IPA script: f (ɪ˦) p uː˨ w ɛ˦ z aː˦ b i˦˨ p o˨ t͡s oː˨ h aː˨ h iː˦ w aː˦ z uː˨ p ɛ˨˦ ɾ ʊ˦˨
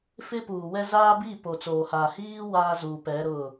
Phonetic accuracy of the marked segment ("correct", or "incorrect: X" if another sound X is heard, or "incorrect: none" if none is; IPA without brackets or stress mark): correct